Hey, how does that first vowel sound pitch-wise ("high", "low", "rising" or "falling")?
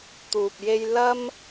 low